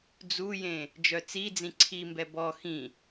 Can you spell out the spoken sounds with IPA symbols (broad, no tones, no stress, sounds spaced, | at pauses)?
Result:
d͡z u j ẽ | d͡ʒ œ t͡s i d͡z ĩ ǀʰ i m b ɛ b ɔ x ĩ